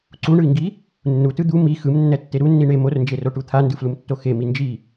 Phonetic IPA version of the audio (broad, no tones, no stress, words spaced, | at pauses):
ǀuɳɯi̯ŋɡi | nːutɯ d̪u mi xɯmnːɛtːe ɾunːi ɳe mornd͡ʒeroʈu t̪ʰandɯflumtːo xemi nd͡ʒi